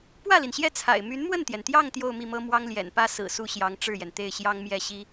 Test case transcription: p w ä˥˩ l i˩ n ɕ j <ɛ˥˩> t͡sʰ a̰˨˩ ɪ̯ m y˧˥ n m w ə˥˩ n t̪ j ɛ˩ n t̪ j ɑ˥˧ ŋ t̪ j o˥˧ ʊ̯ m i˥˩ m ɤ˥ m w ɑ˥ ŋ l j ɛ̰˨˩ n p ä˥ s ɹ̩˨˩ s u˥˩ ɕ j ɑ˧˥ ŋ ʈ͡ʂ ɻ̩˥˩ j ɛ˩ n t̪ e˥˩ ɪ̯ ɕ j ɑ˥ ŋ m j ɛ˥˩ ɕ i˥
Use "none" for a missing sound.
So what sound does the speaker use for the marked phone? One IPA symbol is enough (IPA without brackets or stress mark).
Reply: ɛ˥˩